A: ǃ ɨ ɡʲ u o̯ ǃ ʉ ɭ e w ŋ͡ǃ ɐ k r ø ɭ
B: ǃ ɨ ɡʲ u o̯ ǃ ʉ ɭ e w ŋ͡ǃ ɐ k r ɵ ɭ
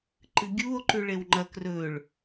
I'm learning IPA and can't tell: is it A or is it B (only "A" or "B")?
B